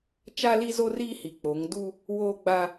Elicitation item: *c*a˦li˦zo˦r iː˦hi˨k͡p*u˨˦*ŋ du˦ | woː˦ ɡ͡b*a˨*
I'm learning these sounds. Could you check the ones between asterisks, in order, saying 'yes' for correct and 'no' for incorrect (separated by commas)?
no, no, no